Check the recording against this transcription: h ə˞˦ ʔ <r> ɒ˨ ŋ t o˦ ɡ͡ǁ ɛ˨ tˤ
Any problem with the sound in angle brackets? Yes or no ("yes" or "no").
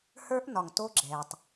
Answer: yes